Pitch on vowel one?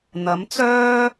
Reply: rising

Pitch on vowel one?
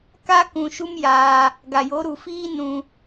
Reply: high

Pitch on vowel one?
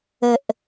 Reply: low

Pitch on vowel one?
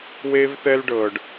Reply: high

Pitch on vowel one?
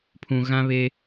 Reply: low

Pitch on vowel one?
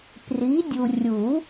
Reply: rising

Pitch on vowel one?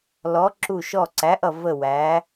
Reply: rising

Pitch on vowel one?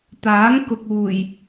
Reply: rising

